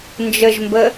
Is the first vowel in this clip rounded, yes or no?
no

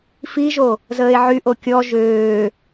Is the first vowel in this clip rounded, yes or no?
no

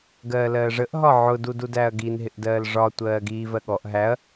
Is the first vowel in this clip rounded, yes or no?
no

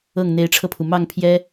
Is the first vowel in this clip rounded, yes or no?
no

